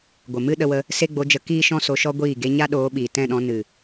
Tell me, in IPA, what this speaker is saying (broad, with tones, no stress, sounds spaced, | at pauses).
ɡʷ ə˨ m ɨ˦ ɗ ə˧ w ə˧ | s e˦ ɡ͡b o˧ d͡ʒ ə˧ k iː˦ ʃ ɔ̃˦ s o˧ ʃ ɔ˦ ɡʷ iː˦˨ ɡ e˦ ɲ a˦ ɗ oː˨˦ ɓ iː˨ t ɛ̃˦˨ ɗ ɔ̃˧ n ɨ˨